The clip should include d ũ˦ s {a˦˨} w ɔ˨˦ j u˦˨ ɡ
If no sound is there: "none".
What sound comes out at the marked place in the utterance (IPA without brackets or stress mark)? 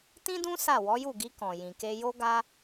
a˦˨